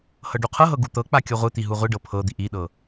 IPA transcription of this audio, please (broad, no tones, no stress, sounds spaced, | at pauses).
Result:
h ɤ ɖ u qʰ ɤ ɦ ɤ ɡ u t̪ ɤ k͡p a kʲ ɤ ʁʷ ɯ t̪ i ɦ u ʁʷ i ɖ ɤ pʰ ɤ d̪ i ʔ i ɗ ɤ